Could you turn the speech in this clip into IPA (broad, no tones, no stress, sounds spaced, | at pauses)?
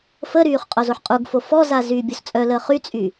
f ə ɾ yː χ qʼ o z o ħ qʼ u ɡ f o f ɔ z a z yː bʲ o s t͡sʼ œ l əː χ y t͡sʼ y